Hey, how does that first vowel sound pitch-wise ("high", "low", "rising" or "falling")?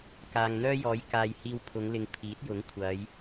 low